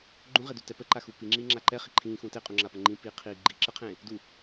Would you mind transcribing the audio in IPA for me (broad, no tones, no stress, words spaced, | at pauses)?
ɡ͡ǃũʁedu tɛpəǃaxu piŋ͡ǁiː ŋ͡ǁaǃɛ χiǃʰĩːxũː teqʼũŋ͡ǁapə ŋ͡ǃĩpiː qʰiːɡ͡ǃi ǁəqʰẽ | du